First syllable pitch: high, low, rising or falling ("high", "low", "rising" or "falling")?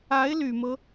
rising